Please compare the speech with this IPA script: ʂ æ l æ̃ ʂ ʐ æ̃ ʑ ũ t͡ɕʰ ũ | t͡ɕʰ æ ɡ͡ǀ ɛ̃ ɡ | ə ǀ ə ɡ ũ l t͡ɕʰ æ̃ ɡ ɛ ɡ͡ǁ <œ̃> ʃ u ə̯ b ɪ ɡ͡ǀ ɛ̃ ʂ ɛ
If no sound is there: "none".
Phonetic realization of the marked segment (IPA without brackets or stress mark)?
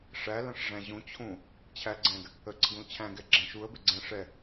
æ̃